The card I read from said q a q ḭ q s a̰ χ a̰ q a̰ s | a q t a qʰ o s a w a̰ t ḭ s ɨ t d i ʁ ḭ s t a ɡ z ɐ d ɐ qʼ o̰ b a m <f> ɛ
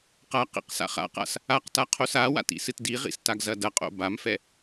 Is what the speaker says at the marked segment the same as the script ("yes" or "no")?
yes